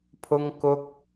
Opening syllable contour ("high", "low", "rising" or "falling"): high